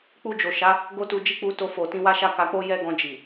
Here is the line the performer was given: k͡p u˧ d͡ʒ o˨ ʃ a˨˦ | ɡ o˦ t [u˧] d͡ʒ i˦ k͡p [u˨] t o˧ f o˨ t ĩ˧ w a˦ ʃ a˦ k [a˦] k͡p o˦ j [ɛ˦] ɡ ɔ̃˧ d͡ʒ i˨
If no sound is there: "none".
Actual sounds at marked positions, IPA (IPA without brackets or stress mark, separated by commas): u˧, u˧, a˧, ɛ˦